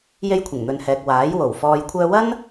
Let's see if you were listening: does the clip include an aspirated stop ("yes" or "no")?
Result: yes